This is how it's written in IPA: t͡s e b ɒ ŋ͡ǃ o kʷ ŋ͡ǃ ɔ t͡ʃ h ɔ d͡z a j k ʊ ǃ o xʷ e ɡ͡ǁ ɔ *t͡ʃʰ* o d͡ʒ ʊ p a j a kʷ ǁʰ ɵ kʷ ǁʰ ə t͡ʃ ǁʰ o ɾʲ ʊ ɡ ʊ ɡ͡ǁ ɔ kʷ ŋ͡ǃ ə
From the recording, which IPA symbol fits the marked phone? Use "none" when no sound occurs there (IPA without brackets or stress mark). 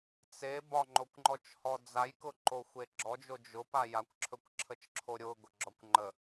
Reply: d͡ʒ